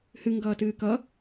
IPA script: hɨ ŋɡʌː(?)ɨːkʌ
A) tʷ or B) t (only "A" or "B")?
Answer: B